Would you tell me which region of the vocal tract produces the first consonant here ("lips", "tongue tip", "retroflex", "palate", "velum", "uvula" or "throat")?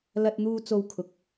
tongue tip